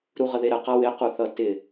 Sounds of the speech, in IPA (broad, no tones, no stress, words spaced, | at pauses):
ɾuʁəðeɾə qawɪ quθʌtɪ